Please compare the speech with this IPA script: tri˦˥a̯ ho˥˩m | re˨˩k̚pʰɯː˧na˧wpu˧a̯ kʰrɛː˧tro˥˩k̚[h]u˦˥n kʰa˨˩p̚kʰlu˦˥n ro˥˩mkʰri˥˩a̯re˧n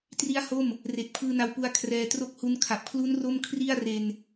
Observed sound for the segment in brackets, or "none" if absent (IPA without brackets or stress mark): h